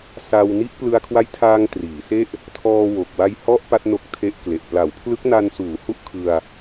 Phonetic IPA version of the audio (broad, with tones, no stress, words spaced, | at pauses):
sa˧w ni˦˥ʔplɯ˧a̯kʰwa˦˥jtʰaː˧ŋ triː˩˦se˥˩ʔ | tʰɔː˧wo˨˩k̚ wa˧jhɔ˦˥ʔ pa˦˥t̚no˦˥k̚tʰe˦˥ʔkle˨˩ʔ pla˩˦wpʰlɯ˦˥k̚na˧nsuː˩˦ hu˥˩ʔkʰɯ˧a̯